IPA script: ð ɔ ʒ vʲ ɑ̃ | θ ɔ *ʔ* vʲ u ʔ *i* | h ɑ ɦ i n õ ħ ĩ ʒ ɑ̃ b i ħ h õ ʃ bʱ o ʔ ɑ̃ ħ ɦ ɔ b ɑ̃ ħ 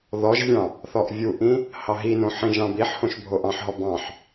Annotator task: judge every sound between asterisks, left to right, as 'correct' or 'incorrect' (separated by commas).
correct, incorrect